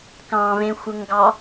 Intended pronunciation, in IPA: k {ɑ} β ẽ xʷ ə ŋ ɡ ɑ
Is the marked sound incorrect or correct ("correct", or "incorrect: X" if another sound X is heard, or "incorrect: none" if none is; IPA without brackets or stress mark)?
incorrect: ɑ̃